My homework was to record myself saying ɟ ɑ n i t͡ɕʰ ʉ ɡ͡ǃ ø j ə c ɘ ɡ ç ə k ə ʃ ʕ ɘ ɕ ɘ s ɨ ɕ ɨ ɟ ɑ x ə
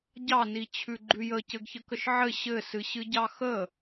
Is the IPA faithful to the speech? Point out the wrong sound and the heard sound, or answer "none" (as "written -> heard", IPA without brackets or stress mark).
ø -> ʉ